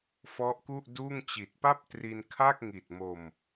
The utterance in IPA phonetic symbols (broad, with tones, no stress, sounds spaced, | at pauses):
f ɔ˦˥ ʔ k u˥˩ ʔ d uː˥˩ ŋ t͡ɕ i˨˩ t̚ p a˥˩ p̚ t r i˧ n kʰ a˥˩ k̚ ŋ i˨˩ t̚ m o˧ m